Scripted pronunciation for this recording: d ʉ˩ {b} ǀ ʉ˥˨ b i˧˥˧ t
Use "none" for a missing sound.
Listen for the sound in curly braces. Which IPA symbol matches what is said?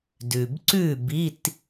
b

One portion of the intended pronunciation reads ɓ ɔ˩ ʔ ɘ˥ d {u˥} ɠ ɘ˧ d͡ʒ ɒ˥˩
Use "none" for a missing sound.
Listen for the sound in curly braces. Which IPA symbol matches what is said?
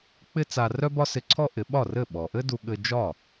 u˧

